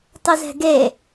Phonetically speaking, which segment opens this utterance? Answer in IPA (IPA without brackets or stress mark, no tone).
tˤ